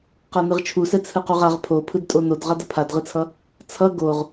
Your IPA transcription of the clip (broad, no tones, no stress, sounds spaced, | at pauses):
q a n ɯ ʁ t͡ʃʰ u s ɛ t͡sʰ ɯ q u ʁ a ʁ pʰ o pʰ ɯ d tʼ o n o d ʁ a d ʌ pʰ a d ʁ ɯ t͡sʰ ʌ | t͡sʰ ʌ ɡ o ʁ